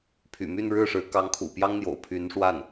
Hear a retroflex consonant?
yes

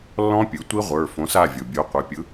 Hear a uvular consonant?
yes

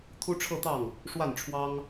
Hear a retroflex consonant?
yes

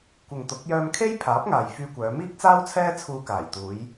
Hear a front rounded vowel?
yes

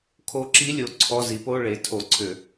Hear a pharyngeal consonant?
no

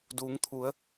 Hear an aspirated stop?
yes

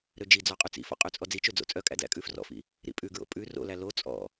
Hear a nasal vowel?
no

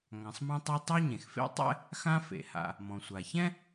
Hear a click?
no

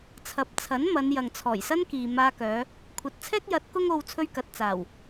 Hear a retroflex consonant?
no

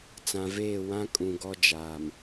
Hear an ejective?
yes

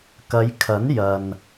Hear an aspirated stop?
yes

